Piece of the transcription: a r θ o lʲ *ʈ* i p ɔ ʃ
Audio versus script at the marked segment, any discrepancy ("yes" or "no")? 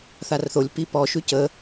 yes